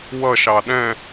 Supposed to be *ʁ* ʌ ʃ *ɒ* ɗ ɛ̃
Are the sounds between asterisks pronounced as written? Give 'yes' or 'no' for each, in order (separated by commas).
no, no